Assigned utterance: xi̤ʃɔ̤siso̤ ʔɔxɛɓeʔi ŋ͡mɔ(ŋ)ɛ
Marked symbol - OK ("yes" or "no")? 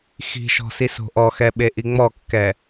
no